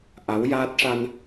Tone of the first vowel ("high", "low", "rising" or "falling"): rising